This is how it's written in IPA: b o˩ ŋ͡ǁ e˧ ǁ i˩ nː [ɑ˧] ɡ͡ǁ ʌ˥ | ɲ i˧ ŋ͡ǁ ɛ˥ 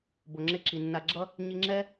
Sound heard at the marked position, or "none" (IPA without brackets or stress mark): a˧